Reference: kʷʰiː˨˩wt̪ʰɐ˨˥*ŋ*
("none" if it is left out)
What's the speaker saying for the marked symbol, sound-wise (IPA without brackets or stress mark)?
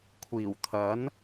n